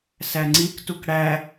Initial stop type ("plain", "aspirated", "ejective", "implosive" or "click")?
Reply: click